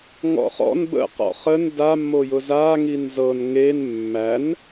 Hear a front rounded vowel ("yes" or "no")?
no